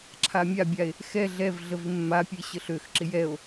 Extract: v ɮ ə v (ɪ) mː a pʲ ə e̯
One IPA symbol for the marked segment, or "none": ɪ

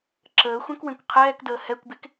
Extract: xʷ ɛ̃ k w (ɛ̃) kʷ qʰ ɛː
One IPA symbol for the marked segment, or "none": ẽ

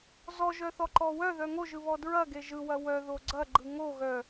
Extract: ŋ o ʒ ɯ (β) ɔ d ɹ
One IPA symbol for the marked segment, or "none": β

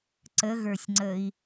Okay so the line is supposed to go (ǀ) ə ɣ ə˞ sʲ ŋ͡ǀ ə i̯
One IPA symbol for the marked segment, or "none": ǀ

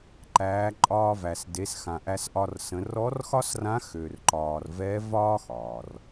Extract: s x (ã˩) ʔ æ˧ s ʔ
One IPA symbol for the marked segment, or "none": ã˩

